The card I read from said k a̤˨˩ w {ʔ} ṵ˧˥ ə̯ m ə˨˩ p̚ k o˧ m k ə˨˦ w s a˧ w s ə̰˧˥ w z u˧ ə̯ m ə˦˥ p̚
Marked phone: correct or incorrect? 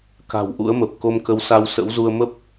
correct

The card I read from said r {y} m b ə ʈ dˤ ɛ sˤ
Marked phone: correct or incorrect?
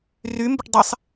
correct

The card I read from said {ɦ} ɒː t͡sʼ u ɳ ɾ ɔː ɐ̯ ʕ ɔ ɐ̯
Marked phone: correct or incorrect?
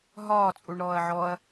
correct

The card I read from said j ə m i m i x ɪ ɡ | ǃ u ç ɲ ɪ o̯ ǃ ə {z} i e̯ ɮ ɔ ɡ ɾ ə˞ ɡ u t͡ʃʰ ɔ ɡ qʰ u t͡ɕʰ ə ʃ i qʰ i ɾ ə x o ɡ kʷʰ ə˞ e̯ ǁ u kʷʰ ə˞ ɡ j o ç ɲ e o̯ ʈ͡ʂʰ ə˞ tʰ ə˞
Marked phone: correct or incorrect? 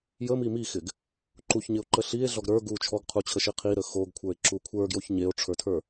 incorrect: ɬ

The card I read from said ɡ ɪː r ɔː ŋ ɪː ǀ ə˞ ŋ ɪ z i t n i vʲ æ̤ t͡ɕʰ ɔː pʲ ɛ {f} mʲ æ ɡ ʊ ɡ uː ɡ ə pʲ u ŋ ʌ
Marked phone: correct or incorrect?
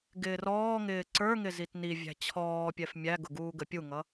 correct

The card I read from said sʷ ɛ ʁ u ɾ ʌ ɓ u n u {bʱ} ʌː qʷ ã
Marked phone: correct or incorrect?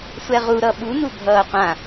correct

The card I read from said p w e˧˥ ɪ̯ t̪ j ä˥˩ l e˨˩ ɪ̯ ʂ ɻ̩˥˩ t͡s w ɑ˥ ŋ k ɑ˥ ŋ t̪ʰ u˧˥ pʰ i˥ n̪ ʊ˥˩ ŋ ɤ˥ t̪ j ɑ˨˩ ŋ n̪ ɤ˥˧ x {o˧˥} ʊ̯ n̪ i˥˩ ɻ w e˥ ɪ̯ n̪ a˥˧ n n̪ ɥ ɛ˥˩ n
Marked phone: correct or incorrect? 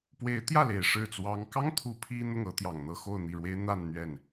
incorrect: o˥˧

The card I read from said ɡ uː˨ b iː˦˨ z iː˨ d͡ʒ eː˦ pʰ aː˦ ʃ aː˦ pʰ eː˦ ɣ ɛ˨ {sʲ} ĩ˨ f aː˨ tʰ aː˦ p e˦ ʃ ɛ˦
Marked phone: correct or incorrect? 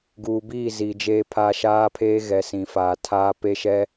incorrect: s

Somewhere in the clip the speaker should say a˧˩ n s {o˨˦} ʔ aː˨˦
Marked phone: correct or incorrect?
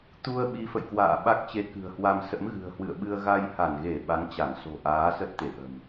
incorrect: o̤˨˩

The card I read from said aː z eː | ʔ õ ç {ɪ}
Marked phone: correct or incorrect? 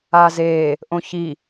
incorrect: i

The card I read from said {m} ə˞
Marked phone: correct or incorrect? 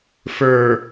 incorrect: f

